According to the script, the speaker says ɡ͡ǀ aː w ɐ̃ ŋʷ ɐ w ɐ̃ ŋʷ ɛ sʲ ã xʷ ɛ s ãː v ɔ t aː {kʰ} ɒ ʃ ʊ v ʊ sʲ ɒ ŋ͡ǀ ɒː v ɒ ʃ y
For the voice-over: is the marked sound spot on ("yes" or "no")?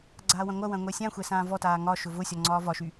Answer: no